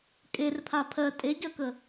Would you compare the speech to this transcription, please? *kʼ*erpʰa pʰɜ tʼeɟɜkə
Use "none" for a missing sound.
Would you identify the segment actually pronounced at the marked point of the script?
kʼ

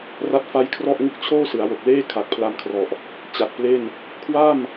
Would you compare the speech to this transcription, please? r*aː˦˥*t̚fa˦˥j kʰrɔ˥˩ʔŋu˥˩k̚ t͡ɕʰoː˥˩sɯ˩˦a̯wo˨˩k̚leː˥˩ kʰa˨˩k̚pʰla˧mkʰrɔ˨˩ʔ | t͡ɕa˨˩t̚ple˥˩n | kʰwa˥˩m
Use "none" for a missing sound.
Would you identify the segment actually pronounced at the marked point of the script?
a˦˥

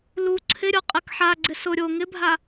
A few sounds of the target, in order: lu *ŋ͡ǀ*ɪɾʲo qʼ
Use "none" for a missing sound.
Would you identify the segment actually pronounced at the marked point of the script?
ǀʰ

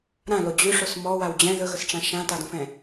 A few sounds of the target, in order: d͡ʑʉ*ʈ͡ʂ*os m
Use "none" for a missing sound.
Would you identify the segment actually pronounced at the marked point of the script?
ʂ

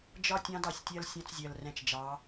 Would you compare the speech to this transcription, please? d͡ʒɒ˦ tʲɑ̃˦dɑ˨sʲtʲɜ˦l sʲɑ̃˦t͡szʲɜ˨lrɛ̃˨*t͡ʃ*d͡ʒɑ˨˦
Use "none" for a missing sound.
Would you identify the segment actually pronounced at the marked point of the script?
t͡ʃ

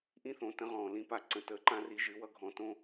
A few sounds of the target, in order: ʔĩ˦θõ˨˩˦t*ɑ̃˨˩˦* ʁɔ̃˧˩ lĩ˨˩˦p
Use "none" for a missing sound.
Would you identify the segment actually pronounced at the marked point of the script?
ə̃˨˩˦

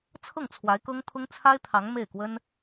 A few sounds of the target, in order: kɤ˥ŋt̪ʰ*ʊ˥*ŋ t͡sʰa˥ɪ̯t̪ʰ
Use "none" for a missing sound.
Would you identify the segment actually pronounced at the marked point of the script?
ʊ˥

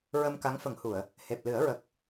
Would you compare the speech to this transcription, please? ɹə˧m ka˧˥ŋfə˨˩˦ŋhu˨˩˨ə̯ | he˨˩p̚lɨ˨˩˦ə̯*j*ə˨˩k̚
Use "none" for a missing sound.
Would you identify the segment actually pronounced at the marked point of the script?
ɹ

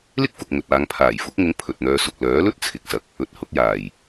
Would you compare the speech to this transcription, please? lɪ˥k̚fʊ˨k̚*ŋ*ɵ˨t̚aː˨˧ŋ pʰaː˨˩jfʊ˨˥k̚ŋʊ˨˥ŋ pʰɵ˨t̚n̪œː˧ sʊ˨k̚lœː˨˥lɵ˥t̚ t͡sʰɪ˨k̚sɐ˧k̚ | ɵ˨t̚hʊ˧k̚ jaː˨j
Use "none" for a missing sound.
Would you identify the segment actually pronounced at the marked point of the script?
ŋ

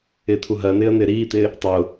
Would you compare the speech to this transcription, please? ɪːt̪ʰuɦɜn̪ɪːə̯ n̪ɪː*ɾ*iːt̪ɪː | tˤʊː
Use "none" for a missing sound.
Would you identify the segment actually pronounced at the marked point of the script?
ɾ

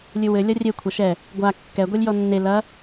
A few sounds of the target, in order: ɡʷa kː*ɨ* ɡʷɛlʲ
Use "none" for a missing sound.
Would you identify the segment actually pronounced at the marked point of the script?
ɛ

